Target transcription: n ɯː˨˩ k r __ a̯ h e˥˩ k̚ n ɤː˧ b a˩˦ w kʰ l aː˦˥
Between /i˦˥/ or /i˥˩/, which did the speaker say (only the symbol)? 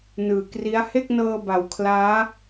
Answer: i˦˥